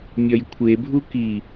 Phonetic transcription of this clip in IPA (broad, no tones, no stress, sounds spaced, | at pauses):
mʲ ɒ j kʷʰ e bʱ u k i